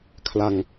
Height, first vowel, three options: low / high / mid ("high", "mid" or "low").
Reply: low